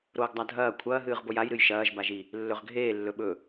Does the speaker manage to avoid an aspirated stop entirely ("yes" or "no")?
no